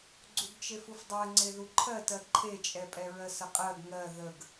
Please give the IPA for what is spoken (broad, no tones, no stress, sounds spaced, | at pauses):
ɡ͡ǀ u ɡ t͡ʃ e f u f dˤ ɜ ŋ͡ǀ e ð u ǃʰ ɜ t ɜ ǃʰ e t͡ʃʼ ɛ pʼ ɛ ɹ ɜ s ə qʼ ɜ ɡ ŋ ɜ ð ə ɡ